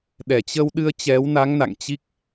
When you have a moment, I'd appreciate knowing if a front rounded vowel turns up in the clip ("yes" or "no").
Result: no